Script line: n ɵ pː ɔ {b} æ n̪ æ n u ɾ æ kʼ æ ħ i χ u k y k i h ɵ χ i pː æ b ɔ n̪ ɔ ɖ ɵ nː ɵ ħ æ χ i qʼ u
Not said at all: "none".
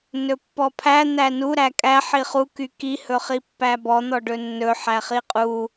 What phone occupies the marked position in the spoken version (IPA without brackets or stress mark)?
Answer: pʰ